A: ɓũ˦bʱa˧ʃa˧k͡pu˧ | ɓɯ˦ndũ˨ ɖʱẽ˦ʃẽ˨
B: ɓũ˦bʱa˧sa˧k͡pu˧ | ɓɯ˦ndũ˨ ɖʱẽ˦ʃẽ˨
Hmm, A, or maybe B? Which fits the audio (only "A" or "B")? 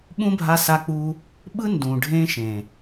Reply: B